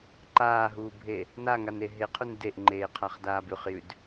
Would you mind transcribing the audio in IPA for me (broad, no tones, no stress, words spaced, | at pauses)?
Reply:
ǃaːɦuːbʱe | naŋane ɦeqʰun deʔŋ͡ǃeːqʰaχdaːb ʉχjʉd